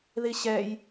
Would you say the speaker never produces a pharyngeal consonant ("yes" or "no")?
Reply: yes